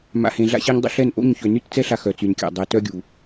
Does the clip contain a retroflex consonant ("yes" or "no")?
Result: no